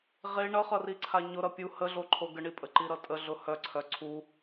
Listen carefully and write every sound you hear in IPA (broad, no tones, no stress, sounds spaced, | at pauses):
ʁ e ɳ ʌ χ ʌ r i ǀʰ a ɲ ʊ ɾ ʌ pʲ u h ə ɮ o ǃʰ o ɡ ə ɳ i pʼ ə ǃ i ɾ ʌ tʼ ə ɮ ʊ h œ ǀʰ œ ǀʰ u